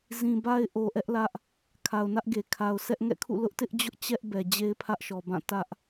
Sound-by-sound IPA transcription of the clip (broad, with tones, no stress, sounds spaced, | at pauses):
z ĩ˨ b a˦ ɪ̯ ʔ o˨ ʔ ɛ˦ ʔ l ä˦ ʔ | kʰ a˨ ʊ̯ n ä˦ ʔ ɡ e˨ kʰ a˨ ʊ̯ s ɛ˦ ʔ ŋ ɛ̰˦˨ kʰ ṵ˦˨ l ʊ˦ ʔ t ɪ˦ ʔ d͡ʑ ʊ˦ ʔ t͡ɕ ɛ˦ ʔ b ɛ˨ d͡ʑ e˦ ɪ̯ pʰ ä˦ ʔ ʃ ɔ˨ b ã˦˨ t ä˦ ʔ